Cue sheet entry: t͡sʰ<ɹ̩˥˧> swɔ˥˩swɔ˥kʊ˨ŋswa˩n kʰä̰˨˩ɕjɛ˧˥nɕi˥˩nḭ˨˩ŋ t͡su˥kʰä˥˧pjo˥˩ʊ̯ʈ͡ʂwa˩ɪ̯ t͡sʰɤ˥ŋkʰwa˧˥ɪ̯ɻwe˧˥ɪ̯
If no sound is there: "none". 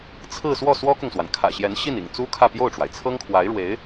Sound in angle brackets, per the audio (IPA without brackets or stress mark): ɹ̩˥˧